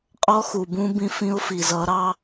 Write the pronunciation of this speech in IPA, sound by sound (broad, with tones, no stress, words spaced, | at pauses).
qʼɔ˦xu˨bũ˦ bĩ˦fĩ˦ʊ̯fi˨ zʌ˨˦ɾɑ˦